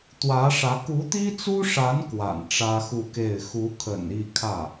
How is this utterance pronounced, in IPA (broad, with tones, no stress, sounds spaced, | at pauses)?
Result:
t̪ w ä˧˥ ʂ ä˧˥ k u˧˥ t̪ i˥ t͡s u˥ ʂ a˧˥ n k w a̰˨˩ n ʈ͡ʂ ä˥ x u˥˧ k e˥˩ ɪ̯ x u˧˥ kʰ ə̰˨˩ n i˥˧ kʰ ä˥˩